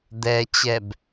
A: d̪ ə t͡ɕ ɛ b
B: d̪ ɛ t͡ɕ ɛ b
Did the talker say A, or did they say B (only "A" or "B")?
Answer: B